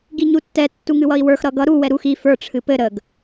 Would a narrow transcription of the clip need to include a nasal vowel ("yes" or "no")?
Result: no